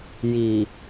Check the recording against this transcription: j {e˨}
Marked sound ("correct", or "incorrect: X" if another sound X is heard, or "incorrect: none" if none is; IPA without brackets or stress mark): incorrect: i˨